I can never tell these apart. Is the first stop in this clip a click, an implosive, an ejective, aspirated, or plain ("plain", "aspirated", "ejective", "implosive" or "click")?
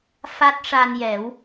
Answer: plain